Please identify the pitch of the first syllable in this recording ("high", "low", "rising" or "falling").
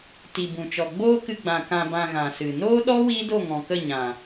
low